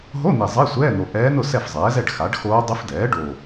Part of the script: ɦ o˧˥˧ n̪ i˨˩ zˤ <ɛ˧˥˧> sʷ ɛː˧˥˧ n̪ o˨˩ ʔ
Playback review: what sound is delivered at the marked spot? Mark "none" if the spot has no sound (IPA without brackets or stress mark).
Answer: ɛ˧˥˧